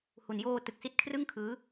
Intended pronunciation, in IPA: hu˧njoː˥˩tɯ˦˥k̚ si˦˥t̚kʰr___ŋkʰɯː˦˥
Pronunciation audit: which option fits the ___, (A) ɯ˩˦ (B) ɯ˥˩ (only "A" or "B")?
B